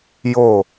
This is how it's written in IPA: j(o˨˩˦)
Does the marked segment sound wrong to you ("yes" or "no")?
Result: yes